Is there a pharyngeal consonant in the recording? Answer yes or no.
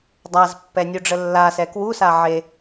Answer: yes